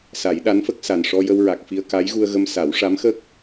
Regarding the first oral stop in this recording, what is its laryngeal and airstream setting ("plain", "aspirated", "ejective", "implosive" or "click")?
implosive